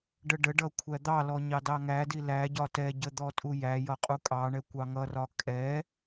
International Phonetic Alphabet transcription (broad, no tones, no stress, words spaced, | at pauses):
ɖəɖəɖʌ kʷʰæd̪ɑlɔ ɲɑdɑŋædi læɟɒ tɛɟə d̪ɔtʼujæjʌ qʼukʼɑɳɛ kʷɑŋʌrɒ kʼɛ